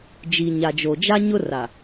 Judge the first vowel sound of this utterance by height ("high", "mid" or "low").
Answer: high